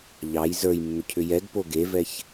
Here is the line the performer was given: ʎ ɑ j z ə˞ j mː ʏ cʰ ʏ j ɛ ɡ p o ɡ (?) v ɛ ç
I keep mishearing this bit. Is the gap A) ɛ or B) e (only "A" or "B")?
B